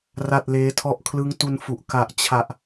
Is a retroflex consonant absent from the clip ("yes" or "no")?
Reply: yes